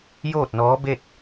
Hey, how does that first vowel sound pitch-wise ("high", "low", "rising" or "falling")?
falling